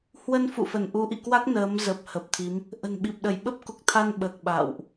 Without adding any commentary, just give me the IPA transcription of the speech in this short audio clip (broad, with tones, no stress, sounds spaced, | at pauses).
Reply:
h w ə˧ n f ṵ˧˨ f ə˧˩ n ʔ u˨˦ ʔ ḭ˧˨ k w a˦˥ k̚ n əː˨˦ m z ə˨˩ p̚ h ə˨˩ p̚ t̪ʰ i˨˦ m | ʔ ə̤˨˩ n ɓ i˨˩ p̚ ɗ ə˧˩ j ɓ ə˦˥ p̚ k u˨˩ k̚ t̪ʰ a˧ n ɓ əː˨˩ k̚ ɓ a̰ː˧˨ w ʔ